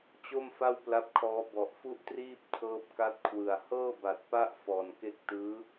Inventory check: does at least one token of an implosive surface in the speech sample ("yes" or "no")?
no